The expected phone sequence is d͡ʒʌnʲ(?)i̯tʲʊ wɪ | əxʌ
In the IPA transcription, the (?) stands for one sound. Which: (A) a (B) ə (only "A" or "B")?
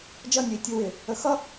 B